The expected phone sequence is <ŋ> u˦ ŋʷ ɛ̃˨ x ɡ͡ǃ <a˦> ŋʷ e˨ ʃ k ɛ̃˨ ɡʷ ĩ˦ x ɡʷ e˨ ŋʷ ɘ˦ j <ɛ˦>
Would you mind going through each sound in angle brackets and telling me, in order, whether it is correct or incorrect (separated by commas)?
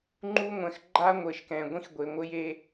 incorrect, correct, incorrect